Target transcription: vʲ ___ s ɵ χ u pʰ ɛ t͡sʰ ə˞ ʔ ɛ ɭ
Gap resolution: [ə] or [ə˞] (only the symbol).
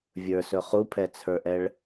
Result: ə˞